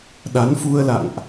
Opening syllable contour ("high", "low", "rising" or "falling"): rising